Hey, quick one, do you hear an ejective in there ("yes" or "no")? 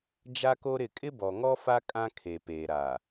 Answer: yes